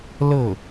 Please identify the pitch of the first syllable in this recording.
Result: falling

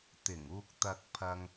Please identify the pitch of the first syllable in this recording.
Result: low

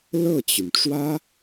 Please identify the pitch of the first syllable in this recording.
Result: falling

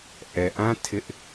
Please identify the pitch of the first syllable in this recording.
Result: low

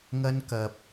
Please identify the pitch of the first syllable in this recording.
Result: high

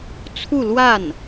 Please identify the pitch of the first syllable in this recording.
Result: falling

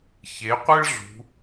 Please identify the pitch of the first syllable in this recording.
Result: rising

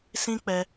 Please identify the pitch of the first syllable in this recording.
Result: high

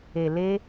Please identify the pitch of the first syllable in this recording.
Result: low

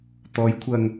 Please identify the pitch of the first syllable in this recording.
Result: rising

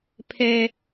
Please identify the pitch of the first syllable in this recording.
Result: high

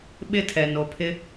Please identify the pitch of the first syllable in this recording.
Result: high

